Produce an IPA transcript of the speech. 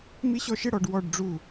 m i˥ ɕ ɔ˥ ʃ ɪ˥ ɽ ɔ˨˦ ɖ w ɔ˥˧ ɖ ɖ͡ʐ u˥˧

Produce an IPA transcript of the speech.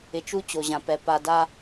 ɪ˨ t͡ʃ u˦ t͡ɕ o˨ ʑ ã˨ p ɛ˨ p a˨ d a˦

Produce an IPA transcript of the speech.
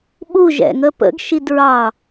ɓ u ʒ ɛ̰ ŋ ə p ə̰ ɡ ʃ i d ɹ ɑ

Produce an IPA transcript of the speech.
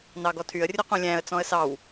n ɑ ɡ ɔ tʰ y ə̯ rʲ ɵ q ũ lʲ æ̃ ə̯ t͡s ɔ̃ ə̯ s ɑ w

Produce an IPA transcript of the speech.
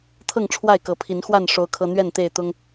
t̪ʰ ɤ˥˨ ŋ ʈ͡ʂʰ w a˥˨ ɪ̯ k ɤ˨˦ pʰ i˨˦ n x w a˥˨ n ʂ o˦ ʊ̯ kʰ ɤ˦ n̪ ɥ ɛ˥˨ n t̪ e˥˨ ɪ̯ t̪ ʊ˦ ŋ

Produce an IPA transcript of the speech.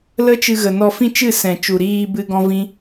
l ə˦ t͡ʃ ɨ˧ ɣ ə˨ n ɔ˧ f ĩ˦ t͡ʃ ɨ˦˨ s ɛ̃˨ t͡ʃ u˨ ɾ iː˧ b ɨ˦ ɡ ɔ̃˦ v ĩ˦

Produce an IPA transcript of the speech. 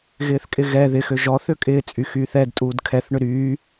ɣ ɪː θ kʼ ɪ ɣ ɛ ð ɪ x ø ʒ ɔ θ ø kʼ ɪː t͡sʼ y x yː θ ɛ d tʼ uː d kʰ ɛ θ ɳ ʏ ɾ yː

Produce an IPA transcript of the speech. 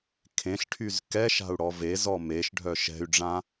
kʰ ẽ ɬ ʈʰ y z k ɛ ʃ a̤ u̯ ɽ ɔ v e z ɔ m e ʃ ɖʱ œ ʃ ɛ̤ y̯ ɖ͡ʐ ã

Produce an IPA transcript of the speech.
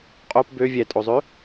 qʼ o p b ø vʲ ɛ tʼ o zˤ ø

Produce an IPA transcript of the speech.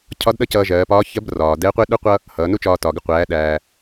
cʰ ɒ˧˥ d ɗ ʌ˥ c ʌː˧ ʒ ɜː˩˧ p ɒː˧˥ ç ɜ˧˥ b r ɒː˩ d ɛ˧˥ qʷ ɪ˥ ɗ u˥ qʷ ʌ˥ | h ʌː˩˧ n u˥ t͡ʃ ɒː˧ t ɒ˩ ɡ ɪ˧ qʷ æː˩˧ ɗ æː˩

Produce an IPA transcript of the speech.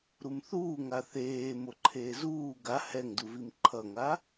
ɾ u m θ uː ŋ a θ eː m o ǃʰ eː z uː ɡ a h ɛ ŋ d u v i m ǃʰ ʌ ŋ a

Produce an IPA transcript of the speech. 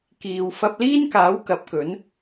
k iː˨ w f ɐ˧ p̚ l iː˥ n k aː˨˥ w k ɐ˨˥ p̚ k ɵ˨˥ n

